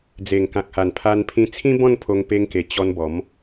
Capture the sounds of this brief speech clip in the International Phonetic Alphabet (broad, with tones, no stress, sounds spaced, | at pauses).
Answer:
d͡z e˨˩ ŋ k ã˨ k̚ h a˨˩ n pʰ a˧ n pʰ ĩ˧ t͡sʰ ĩ˦ b ɔ̃˥˧ n pʰ o˧ ŋ p e˧ ŋ k e˨˩ t͡ɕ ɔ˧ n b ɔ˨˦ m